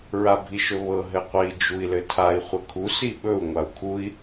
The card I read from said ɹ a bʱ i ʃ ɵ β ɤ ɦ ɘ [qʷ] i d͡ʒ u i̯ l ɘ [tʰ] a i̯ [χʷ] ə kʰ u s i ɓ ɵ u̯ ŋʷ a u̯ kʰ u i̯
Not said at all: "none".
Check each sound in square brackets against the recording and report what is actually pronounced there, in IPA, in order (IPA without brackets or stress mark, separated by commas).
qʷ, tʰ, χʷ